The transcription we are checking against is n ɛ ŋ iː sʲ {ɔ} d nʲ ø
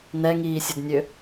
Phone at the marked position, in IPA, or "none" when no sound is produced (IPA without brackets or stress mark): ə